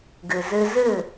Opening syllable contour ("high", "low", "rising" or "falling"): low